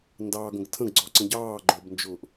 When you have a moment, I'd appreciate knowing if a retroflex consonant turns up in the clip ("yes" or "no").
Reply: no